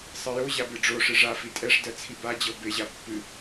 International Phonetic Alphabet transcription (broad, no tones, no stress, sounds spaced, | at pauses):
sˤ ɨ j o ʑ a b ɨ ɖ͡ʐ o ʂ ɨ ʐ a f i tʼ ɛ ʂ d ɜ t͡sʰ i b a d͡ʑ ɤ b e ʑ a pː ɨ